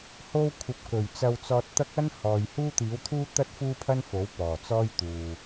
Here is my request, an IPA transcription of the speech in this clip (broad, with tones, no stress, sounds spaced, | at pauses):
h o˧ w kʷʰ ɐ˨˥ p̚ k ɵ˨˩ ɥ t͡s ɐ˧ w t͡s ɔː˧ t̚ t̪ ɐ˥ k̚ ɐ˥ n h ɔː˨ j h uː˥ t̪ iː˨˥ w t̪ʰ uː˥ t̪ ɐ˥ t̚ f uː˥ pʰ ɐ˥ n f o˨˥ w p ɔː˨˩ t͡s ɔː˥ j t̪ uː˨